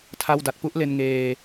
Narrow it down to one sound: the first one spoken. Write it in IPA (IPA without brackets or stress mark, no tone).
tʰ